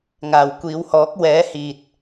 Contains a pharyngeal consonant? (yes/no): no